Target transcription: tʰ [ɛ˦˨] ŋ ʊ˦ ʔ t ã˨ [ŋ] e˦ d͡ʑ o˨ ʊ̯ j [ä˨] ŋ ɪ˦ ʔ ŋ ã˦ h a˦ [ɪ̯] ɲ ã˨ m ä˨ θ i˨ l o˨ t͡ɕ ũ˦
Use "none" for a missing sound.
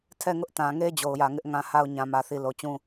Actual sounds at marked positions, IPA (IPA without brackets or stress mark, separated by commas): ɛ˦˨, ŋ, ä˨, ʊ̯